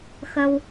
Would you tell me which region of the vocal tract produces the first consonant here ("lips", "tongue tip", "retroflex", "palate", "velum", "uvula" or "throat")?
velum